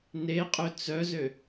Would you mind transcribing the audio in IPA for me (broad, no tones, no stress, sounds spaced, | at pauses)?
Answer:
n e qʼ ø t͡s œ z ø